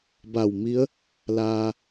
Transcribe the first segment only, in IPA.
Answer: b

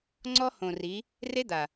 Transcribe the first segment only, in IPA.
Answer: ŋ͡ǀ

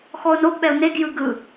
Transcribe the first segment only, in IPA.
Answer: x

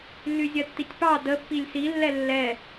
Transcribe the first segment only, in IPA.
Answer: lː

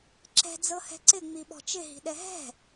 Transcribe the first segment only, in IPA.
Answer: ǁ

